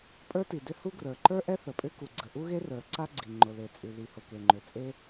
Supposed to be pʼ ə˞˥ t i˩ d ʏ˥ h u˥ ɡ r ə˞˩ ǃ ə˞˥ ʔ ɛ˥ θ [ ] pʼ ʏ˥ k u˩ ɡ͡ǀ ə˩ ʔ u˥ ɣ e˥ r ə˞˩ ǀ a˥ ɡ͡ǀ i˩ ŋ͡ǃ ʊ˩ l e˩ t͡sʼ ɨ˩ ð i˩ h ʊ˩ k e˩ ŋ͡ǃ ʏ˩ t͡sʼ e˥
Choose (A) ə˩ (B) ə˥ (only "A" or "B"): A